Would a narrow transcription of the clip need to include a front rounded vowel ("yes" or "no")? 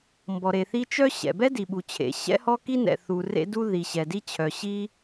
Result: yes